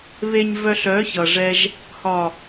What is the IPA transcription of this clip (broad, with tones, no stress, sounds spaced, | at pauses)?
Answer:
β e˨ ɲ v œ˨ ɬ œ˨˦ ç ʌ˨ ʐ ɛ˧ ʒ | h ɒ˨